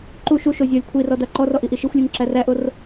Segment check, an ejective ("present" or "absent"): absent